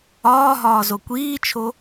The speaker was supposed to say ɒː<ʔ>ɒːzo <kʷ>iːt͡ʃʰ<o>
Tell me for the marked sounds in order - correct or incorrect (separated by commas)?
incorrect, correct, correct